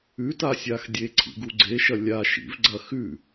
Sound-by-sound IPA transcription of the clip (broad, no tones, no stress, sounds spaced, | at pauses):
ʉ t a sʲ a x dʲ e ǀʰ ḭ ɡ u ɡ͡ǀ e ʃ ɐ lʲ a ʃ ḭ v ɡ͡ǀ ɐ x ʉ